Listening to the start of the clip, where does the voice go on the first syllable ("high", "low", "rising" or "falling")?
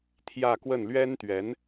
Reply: falling